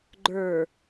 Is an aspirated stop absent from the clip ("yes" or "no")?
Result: yes